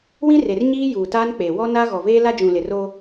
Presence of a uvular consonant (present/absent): absent